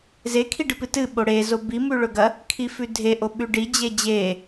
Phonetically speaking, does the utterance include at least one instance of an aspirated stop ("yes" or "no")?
yes